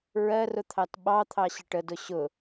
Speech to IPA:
ɹ ɜ r ʊ t̪ʰ ɑ t ɓ ɑ t̪ʰ ɑ ɕ ə ʈ ə d ʊ ɕ ʊ

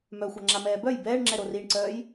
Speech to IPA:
m œ xʷ a ŋ͡ǁ a m ɛː b œ j b ɛː ɳ ŋ͡ǁ ɛ ɾ o r i ɳ ǀ œː j

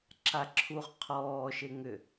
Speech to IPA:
ǁ a ǁʰ u ʁ qʰ ɔː ʃ e ŋ ʏ

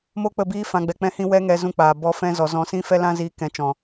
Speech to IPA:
m o˦ k͡p ə˦˨ b iː˦ f ã˧ ɡ͡b ɛ˧ k͡p ɛ̃˦ h ĩ˦ w ɛ˦ ŋ ɛ˧ z ũ˧ k͡p aː˨ b ɔ˨˦ f ɛ̃˧ z ɔ˨ z ɔ̃˨˦ s ĩ˦ f ɛ˦ l ã˦ z iː˧ k ɛ̃˧ t͡ʃ ɔ̃˨

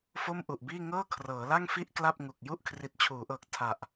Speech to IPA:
f o˥˩ m ʔ u˨˩ ʔ b iː˥˩ ŋ ɤː˥˩ kʰ r ɤː˩˦ l a˥˩ ŋ f i˥˩ ʔ k l a˥˩ p̚ ŋ u˨˩ k̚ j u˥˩ ʔ kʰ r i˨˩ t̚ t͡ɕʰ uː˩˦ ʔ ɤː˨˩ k̚ tʰ a˨˩ ʔ

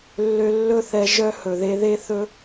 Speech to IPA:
lː ø˧ lː ɵ˦ θ ɛ˧ ʒ œ˦ h ɵ˨ ð e˧ ð e˦ θ ɵ˦

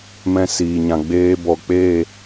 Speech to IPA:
m ɛ̃˧ s iː˨ ɲ ã˨ ɡ͡b eː˧ b ɔ˨ k͡p e˦˨

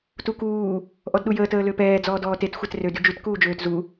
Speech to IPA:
t u k uː | ʔ ɔ d ɗ u j əː t əː l ø p ɛː d͡z ɔː d ɔː t e t xʷ ɛ t r ø d y d͡ʒ y t k uː d͡ʒ øː t z u

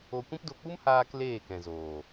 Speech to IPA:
o˧ kʷ ĩ˦ p d o˧ k͡p u˦ m h aː˦ k l eː˦˨ k ɛ̃˨ z oː˨

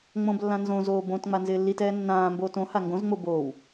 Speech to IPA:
ŋ͡m õ b lː ã n z õ z oː b õ t ŋ͡m a n z ɪː lː i t ɛː nː ãː m b oː t õ h a ŋ ɡ õ z ŋ͡m o b oː w

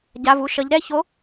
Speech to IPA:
ɟ a˩˧˩ v u˩˧˩ ʃ ʌ˩˧ ʎ ɾ ɛ˥˨ ç o˨˥

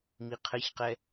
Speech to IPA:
m i qʰ ɘ ç q ɛ

